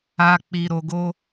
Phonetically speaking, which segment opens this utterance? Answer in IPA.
a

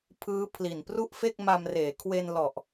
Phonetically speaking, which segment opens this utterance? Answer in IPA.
pʰ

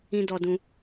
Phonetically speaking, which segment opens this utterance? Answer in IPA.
ĩ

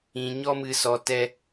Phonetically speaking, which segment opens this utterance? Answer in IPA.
ĩ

